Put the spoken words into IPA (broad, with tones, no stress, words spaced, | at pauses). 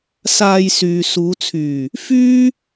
saː˧jsyː˨ suː˨˧t͡sʰyː˨˩ | fyː˥